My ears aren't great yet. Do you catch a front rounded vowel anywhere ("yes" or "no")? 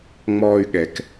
yes